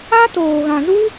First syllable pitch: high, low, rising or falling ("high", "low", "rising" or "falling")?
high